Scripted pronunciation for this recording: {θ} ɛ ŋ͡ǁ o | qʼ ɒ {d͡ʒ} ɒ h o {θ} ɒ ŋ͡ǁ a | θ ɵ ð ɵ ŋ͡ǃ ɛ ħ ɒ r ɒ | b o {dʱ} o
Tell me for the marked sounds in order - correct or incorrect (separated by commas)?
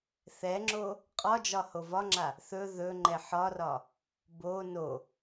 correct, correct, incorrect, incorrect